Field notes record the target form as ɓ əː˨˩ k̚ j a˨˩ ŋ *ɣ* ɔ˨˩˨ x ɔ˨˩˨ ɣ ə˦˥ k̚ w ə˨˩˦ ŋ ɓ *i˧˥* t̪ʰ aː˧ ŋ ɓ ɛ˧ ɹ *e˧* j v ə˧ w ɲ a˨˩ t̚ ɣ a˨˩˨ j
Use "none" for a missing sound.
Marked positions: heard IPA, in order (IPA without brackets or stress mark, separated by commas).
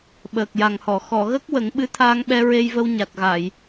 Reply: h, ɨ˧˥, e˧